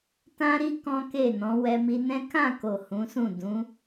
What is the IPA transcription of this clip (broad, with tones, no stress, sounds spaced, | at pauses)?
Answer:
t ã˦ ɾ i˦ k ɔ̃˦ k e˦˨ n ɔ̃˨˦ w ɛ˧ m i˧ n ɛ̃˦ k ã˦˨ k o˨ h ũ˨˦ s ũ˦˨ d ũ˨˦